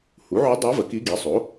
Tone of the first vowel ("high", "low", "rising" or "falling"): rising